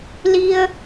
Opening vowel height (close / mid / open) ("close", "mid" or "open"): close